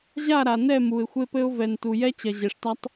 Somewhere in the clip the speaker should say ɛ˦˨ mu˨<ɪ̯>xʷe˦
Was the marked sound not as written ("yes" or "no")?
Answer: no